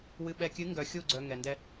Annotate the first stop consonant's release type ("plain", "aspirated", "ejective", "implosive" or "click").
implosive